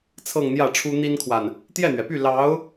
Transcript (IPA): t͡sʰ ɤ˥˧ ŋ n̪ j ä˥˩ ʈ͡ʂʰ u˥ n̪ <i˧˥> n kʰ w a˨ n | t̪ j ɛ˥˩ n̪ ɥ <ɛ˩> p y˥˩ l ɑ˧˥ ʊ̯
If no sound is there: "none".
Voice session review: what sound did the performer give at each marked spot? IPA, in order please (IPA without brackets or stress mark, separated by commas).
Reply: i˥, ɛ˩